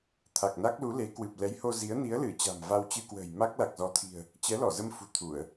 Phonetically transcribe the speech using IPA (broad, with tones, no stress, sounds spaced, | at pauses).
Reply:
t̪ʰ a˨˩ k̚ n a˦˥ k̚ l u˨˦ l e˨˦ k w ɨ˨˩ p̚ l ɛ˨˦ j h o˧ z i˨˦ ə̯ n i˨˦ ə̯ l ɨ˧˩ t͡ɕ a̤˨˩ m v a˧ w t͡ɕ ɨ˧ k w ə̤ː˨˩ j m a˦˥ k̚ l a˨˩ k̚ z ɔ˨˦ t̪ʰ i̤˨˩ ə̯ | t͡ɕ ɛ˨˦ l ɔ˧˩ z ə˧ m f ṳ˨˩ t̪ʰ u˧˩˨ ə̯